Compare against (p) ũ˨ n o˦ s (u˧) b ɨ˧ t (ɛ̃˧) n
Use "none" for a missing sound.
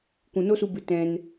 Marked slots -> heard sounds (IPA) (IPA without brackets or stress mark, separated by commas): kʷ, u˧, ɛ̃˧